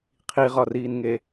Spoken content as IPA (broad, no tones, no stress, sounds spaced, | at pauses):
qʰ i ʁ ɒ r iː n ŋ e